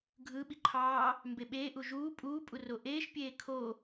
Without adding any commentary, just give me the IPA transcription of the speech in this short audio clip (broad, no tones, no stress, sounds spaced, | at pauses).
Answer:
ɡʱ ɯ ɓ i ǃʰ ɑː | m b e ɓ eː ʔ u ʒ uː pʼ uː pʼ u r o ʔ eː ʃ pʲ eː kʰ o